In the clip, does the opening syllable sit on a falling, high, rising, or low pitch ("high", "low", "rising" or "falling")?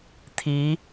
rising